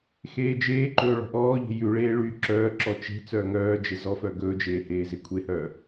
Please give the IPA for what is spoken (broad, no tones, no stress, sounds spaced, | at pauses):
x eː d͡ʒ eː ǃ ɵː ɭ ɔ̤ ʔ ɔː ʎ e̤ j ʉ ɭ eː ɭ y ǁ œː ǁ ɔ t͡ʃ e̤ t͡s œː ŋ œː d͡ʒ e z ɔ f œ ɡ ɵː d͡ʒ eː h eː z e kʷʰ e h œː